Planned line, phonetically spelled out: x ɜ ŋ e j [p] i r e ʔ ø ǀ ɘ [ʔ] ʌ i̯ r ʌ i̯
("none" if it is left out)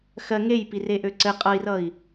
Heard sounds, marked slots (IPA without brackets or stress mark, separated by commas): p, qʼ